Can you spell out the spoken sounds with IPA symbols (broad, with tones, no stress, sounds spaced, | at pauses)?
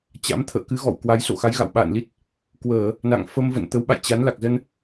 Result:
t͡ɕ a̰˧˥ m t̪ʰ ə̰ː˧˨ k ɨ˨˦ ɣ ɔ̰˧˨ w k w a˨˦ j s o̰˧˨ x a˨˦ j ɣ a̰˧˨ w ɓ a̰ː˧˨ n l i˦˥ t̚ | k w əː˧˩˨ | n a̰˧˨ ŋ f ə˧ m v ə̰˧˨ n t̪ ə˨˦ w ɓ a̰˧˨ j t͡ɕ a˨˦ n l a˨˩ k̚ z ə˧ n